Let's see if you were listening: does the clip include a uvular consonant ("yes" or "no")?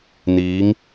no